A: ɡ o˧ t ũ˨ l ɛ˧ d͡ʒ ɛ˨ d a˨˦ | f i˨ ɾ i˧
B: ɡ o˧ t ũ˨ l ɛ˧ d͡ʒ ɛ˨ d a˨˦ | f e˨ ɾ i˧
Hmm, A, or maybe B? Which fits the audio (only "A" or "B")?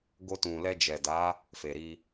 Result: B